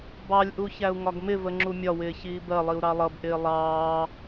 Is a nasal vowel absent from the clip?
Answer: yes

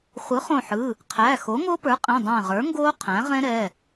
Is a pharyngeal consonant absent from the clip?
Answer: no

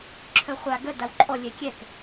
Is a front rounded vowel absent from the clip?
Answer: no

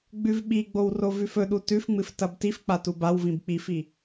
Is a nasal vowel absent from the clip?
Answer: no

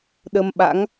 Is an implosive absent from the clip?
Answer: no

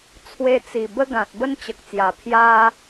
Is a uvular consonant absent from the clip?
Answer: yes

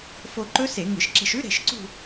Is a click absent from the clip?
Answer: no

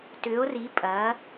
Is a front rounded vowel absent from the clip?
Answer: no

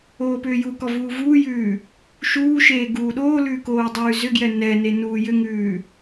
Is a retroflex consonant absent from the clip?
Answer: yes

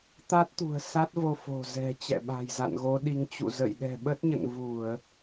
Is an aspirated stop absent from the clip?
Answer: yes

